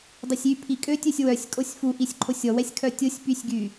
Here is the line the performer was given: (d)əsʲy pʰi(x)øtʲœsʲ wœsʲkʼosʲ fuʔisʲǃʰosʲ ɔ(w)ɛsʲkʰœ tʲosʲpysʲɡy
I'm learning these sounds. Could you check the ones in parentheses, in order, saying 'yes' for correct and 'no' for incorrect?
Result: no, no, yes

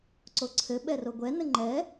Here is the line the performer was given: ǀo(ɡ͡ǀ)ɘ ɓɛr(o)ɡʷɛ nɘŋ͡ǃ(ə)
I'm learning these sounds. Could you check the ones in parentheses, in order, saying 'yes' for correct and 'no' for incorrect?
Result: no, yes, no

